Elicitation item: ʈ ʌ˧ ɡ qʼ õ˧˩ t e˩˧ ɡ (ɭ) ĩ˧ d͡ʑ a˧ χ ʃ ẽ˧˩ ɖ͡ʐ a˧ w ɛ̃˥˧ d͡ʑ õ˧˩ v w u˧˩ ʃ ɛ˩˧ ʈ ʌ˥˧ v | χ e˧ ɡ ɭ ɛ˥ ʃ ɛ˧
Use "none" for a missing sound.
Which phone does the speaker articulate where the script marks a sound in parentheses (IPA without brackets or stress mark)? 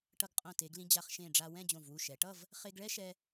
l